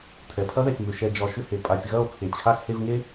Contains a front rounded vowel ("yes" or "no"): yes